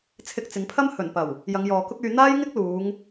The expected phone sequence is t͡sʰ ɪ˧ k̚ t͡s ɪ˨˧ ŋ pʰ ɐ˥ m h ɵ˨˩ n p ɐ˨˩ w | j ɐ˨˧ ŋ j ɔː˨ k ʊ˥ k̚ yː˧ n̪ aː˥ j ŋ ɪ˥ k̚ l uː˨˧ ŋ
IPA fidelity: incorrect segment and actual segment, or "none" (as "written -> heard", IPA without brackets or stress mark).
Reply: none